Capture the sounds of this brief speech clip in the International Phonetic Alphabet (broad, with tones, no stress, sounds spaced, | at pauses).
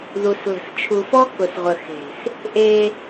ð u˨ s l ə̤˨ s t͡ʃʰ u˨ f ɔ˦ k ʊ˨ s ʁʷ ə˨ x e̤˨ s | ʔ e˦